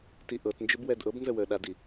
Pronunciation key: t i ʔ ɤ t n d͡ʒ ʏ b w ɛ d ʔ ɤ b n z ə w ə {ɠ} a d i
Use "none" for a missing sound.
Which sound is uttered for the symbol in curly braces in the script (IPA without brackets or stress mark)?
ɗ